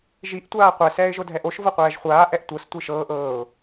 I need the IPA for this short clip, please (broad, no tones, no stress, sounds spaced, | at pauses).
ʒ i ʔ tʷ aː qʷ ɛ s ɛː ɪ̯ ʒ o dʱ ɛ ʔ o ʃ v ɤ qʷ ɛː ʒ χʷ aː ʔ ɛ ʔ tʷ ɤ s tʷ i ʃ ɤː ʔ ɤː ʊ̯